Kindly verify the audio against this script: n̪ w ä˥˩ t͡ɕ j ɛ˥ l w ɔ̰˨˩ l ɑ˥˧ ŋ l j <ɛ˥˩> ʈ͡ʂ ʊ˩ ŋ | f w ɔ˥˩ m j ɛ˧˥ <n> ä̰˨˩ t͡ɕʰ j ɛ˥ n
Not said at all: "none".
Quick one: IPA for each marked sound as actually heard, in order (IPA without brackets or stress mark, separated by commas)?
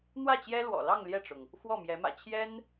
ɛ˥˩, m